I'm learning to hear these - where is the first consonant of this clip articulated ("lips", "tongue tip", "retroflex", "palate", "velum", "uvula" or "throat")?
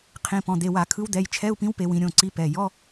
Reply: uvula